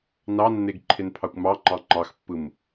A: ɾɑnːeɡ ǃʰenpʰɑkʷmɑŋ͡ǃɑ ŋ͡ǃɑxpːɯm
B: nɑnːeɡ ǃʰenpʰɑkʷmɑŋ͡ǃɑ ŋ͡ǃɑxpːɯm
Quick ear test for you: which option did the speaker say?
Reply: B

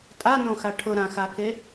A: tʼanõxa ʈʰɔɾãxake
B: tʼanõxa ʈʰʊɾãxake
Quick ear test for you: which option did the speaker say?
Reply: B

